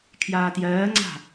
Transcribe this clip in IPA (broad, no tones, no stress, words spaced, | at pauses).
kʰjaːtjɜːŋ͡ǀa̤